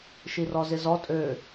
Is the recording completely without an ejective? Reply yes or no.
no